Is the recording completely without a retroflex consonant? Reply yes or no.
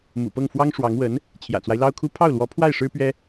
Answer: no